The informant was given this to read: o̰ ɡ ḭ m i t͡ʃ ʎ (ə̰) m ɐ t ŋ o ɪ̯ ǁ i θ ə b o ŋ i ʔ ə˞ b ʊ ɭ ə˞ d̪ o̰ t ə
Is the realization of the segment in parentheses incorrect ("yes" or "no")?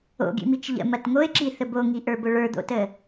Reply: no